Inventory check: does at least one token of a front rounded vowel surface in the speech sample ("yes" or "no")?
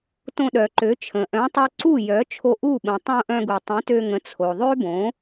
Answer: yes